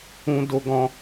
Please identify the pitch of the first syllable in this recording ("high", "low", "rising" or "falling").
high